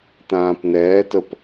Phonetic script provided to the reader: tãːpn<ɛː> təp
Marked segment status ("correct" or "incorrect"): correct